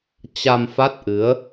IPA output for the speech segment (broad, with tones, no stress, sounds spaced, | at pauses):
t͡ɕ a˧ m f a˦˥ t̚ ʔ ɨ˨˦ ə̯